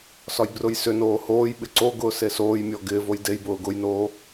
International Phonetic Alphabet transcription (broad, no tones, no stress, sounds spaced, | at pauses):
s ɒ j b r ʊ j s ʏ n oː h oː j ɓ ɪ ǀ o ɡ ʊː s e s oː j mʲ ɔ ɡ ɪː v o j d e j b ʊː ɡ ʊ j n oː